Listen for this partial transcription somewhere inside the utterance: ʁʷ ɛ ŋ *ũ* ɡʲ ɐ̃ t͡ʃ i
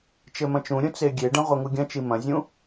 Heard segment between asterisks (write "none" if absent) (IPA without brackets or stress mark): u